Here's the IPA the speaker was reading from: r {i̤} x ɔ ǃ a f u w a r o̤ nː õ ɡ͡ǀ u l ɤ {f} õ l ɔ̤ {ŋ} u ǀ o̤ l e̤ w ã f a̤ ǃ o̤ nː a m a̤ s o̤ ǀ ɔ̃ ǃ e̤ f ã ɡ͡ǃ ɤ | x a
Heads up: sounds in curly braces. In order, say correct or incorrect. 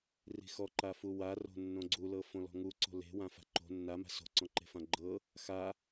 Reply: correct, correct, correct

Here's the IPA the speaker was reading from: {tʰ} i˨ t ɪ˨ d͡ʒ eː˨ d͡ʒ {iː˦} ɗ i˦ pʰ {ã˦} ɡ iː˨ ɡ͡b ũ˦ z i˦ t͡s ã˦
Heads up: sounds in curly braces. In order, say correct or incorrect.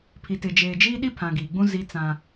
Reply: incorrect, correct, incorrect

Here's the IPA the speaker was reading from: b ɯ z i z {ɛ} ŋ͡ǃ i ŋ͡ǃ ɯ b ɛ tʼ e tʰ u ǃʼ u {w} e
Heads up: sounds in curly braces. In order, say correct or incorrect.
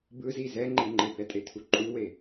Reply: correct, correct

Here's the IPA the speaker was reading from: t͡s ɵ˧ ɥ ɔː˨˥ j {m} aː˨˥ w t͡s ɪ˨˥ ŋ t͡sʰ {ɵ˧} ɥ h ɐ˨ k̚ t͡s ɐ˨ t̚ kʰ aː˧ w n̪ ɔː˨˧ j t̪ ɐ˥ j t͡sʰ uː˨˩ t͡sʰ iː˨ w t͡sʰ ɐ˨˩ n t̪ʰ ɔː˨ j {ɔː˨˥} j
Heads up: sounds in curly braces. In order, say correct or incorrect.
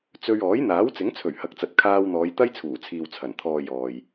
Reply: incorrect, incorrect, incorrect

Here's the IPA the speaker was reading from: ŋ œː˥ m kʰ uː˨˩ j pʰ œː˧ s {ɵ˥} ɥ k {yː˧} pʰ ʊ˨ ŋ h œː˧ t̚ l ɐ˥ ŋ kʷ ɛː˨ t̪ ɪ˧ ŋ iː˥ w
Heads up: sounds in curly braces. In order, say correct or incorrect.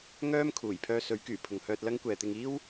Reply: incorrect, incorrect

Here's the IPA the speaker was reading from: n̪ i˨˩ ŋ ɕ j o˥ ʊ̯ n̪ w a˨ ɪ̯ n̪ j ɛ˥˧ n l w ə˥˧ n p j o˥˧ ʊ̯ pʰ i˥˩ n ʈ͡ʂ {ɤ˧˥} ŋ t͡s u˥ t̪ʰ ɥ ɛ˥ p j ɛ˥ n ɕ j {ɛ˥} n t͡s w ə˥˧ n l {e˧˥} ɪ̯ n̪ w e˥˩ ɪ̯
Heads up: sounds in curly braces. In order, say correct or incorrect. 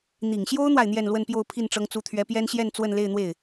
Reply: incorrect, incorrect, incorrect

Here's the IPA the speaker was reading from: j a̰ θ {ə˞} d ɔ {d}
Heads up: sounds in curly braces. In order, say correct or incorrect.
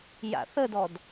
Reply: incorrect, correct

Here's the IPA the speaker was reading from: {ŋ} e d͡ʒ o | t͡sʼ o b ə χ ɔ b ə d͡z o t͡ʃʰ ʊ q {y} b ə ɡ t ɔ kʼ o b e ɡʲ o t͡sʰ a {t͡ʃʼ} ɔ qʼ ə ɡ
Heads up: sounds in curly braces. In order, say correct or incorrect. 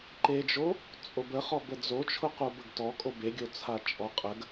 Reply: incorrect, incorrect, correct

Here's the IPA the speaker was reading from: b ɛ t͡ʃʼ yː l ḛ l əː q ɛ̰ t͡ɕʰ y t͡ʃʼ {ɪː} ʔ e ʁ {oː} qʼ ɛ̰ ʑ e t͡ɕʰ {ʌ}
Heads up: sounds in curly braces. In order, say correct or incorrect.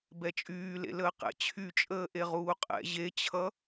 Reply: incorrect, incorrect, correct

